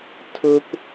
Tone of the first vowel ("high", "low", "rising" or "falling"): high